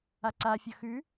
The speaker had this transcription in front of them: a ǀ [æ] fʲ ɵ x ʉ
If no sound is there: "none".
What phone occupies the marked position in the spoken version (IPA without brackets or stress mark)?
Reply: a